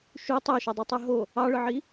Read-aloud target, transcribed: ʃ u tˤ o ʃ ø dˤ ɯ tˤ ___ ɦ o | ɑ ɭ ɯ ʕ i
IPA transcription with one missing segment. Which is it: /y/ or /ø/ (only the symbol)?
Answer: y